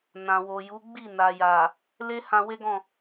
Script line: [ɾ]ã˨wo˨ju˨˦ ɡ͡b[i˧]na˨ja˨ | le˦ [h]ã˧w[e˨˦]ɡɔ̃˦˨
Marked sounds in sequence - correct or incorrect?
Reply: incorrect: n, incorrect: i˦˨, correct, incorrect: e˦

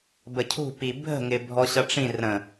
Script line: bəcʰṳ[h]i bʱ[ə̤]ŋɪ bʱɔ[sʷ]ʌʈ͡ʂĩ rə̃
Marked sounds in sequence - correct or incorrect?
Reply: incorrect: p, correct, incorrect: ɕ

